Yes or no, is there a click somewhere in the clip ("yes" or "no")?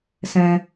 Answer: no